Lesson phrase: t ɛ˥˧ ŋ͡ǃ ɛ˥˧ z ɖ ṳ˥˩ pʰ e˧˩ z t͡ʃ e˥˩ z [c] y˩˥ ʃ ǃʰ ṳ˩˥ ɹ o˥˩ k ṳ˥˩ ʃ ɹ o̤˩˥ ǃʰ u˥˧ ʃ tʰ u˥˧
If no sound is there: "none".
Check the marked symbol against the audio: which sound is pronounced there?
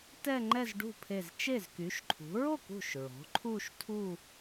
k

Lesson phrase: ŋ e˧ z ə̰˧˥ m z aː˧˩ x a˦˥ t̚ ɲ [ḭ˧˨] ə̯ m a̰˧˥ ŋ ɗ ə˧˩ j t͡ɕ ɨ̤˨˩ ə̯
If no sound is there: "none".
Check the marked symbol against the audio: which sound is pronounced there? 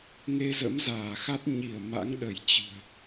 i˧˩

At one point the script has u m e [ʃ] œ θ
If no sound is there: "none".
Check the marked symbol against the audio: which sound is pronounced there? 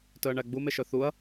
ʃ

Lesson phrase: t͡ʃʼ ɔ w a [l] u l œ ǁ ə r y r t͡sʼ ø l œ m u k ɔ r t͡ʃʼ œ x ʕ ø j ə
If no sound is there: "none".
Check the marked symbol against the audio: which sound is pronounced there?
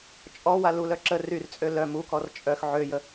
l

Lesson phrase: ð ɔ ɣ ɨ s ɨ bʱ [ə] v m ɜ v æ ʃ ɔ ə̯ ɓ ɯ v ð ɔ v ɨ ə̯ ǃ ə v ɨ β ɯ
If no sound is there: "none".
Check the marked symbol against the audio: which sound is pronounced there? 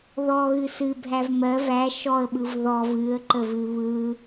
æ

